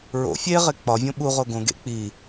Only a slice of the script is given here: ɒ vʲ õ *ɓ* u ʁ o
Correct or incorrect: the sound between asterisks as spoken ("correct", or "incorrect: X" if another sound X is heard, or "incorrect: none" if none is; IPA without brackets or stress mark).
correct